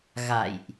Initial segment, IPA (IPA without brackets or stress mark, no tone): ɣ